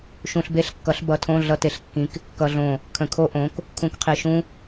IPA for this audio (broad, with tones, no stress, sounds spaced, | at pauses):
ʃ ũ˧ ɬ b e˦˥ ɬ kː ʌ˨˥ ɬ b ʌ˨˥ tʰ õ˧˥˧ ɮ ʌ˧˥˧ t e˧˩ ɬ kː ĩ˨˥ k | k ʌ˧ ɮ õ˧˩ | kʰ ə̃˧˩ kʰ o˦˥ ʔ õ˨˥ k | kʰ ũ˧ k qʰ i˧˩ ʃ ũ˦˥